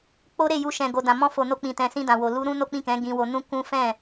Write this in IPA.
k͡p o˦ ɾ e˦˨ j u˧ ʃ ɛ̃˨ ɡ o˨ d ã˨ m ɔ̃˧ f o˨ n o˧ k͡p ĩ˨ t ɛ̃˨ s ĩ˧ d ã˨ w o˨ l u˧ ɾ ũ˦ n o˦ k͡p ĩ˦˨ k ɛ̃˨˦ ɡ ĩ˧ w o˧ n ũ˦ k ũ˦ f ɛ̃˦˨

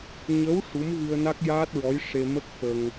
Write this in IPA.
ɲ ə˧˥ w ʂ u˧˥ m ɣ ɨ˧ ə̯ n a˦˥ k̚ j aː˦˥ t̚ ɹ ɔ˧˥ j ʂ e˧ m ə˦˥ k̚ f ə˧ ŋ

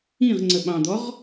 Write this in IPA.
ĩ ʁ ŋ͡ǀ ə ɓ ɑ̃ d̪ ɔ ʁ

